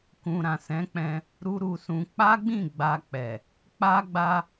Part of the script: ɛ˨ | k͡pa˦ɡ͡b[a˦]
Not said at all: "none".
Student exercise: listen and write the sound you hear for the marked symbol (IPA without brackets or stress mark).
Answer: a˦